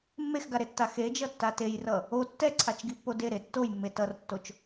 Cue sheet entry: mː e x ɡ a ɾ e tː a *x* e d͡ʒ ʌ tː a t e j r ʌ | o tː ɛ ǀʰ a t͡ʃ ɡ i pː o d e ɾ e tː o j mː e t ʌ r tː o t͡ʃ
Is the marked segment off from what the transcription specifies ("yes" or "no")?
no